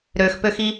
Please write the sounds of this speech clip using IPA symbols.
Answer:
ɾ ø x p ø x i

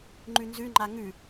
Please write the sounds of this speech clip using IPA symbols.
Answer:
ŋ͡ǃ ʉ n z ʉ ŋ͡ǃ a ŋ ʉ

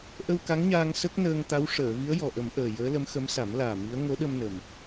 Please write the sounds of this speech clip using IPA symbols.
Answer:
ʔ ə˧ w k a˧˥ ŋ ɲ aː˧ ŋ s ə˦˥ k̚ n əː˧ ŋ t̪ a˧˥ w ʂ əː˨˩˨ v i˧˥ ə̯ j ɔ˨˩ ʔ ə˨˩˦ m ʔ əː˨˩ j əː˧˥ l ə˧˥ m x ə˧˥ m s a˨˩˦ m l aː˨˩ m i˧˥ ə̯ ŋ o˧˥ ɗ ə˧ m n ə˨˩ m

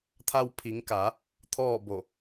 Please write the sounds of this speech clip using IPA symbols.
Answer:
t̪ʰ a˧ w pʰ i˩˧ ŋ k aː˩˧ | t̪ʰ ɔː˥˨ b o˧˩

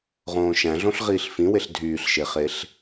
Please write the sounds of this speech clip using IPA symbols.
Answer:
ʁ õː ʃ æ̃ ɮ õ ɬ ʁ iː ɬ f ĩ w e ɬ dʱ yː ɬ ʃ e χ e ɬ

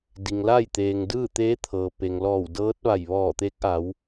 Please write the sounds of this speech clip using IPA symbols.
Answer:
d i˩ ŋ l a˥˨ j t̪ eː˩ ŋ d ɯː˥˨ t̪ eː˧˥ t̪ʰ ɤː˩ p e˩ ŋ l ɔː˧˩ w d ɤː˧˥ t̚ ʋ a˧˩ j ʋ ɔː˧˩ t̪ e˧˥ k̚ ʔ a˩˧ w

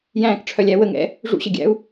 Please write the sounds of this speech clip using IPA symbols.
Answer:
j æ̃ː k ʈ͡ʂʰ œ lʲ æ w ə ŋ ɛ̰ | ʐ ṵ ɕ ə ɡʲ æ̰ u̯

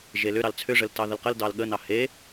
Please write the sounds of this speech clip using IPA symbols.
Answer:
ʒ e l ʏ ɾ ɑ l t͡sʰ ʏ ʐ ə l t ɑ ð ə l q ə l d ɑ l ɠ ə n ɑ h e

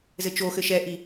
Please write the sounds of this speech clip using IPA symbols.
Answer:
z ɘ t͡ʃ o x ɘ ʃ ɛ ʔ i

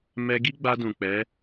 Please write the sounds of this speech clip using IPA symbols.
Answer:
m ɛ˧ ɡ i˦ ɡ͡b a˧ d ũ˨ k͡p ɛ˨˦

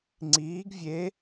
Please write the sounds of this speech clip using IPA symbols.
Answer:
ŋ͡ǀ iː˧˥ ɡ vʲ e˧˥

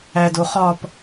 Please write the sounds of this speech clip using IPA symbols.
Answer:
æ d o χ ɒ p

